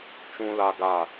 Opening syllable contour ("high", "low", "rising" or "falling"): high